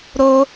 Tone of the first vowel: high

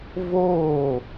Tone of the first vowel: falling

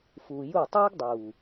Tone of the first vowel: low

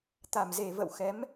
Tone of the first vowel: low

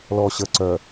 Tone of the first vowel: low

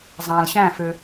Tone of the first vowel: low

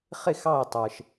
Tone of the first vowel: falling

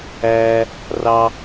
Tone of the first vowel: high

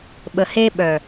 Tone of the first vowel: low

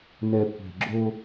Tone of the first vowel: low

